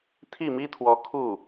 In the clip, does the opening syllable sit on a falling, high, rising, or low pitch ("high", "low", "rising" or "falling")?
falling